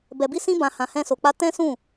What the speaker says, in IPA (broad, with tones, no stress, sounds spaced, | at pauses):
b ɛ˨ b i˧ s ĩ˧ b ã˨ h ã˨ h ɛ̃˧ s o˨ k͡p a˧ t ɛ̃˦ s ũ˦˨